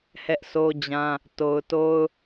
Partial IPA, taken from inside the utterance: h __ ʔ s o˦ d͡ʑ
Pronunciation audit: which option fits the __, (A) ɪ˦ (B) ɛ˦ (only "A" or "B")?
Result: B